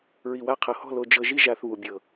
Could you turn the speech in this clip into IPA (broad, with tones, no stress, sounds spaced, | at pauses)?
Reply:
ɹ i˨ w a˧ qʰ ɤ˨ h ɔ̤˦˨ l o˧ d͡ʒ ɤ˧ ʒ i˦ ʒ a˧ θ β u˨ bʲ ɤ˨